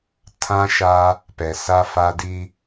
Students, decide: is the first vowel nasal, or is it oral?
nasal